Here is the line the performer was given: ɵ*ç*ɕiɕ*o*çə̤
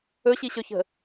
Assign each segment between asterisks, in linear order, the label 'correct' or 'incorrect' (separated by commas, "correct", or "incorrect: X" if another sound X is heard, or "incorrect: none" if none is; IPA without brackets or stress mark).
incorrect: none, incorrect: ɵ